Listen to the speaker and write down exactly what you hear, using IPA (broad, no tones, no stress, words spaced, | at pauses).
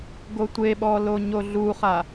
ɡotʷeɓɔ loɲoɮuχa